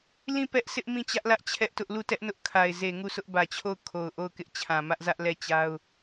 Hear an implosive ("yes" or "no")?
no